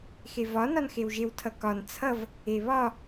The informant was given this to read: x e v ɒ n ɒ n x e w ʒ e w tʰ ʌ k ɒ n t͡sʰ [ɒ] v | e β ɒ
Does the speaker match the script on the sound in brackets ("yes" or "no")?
no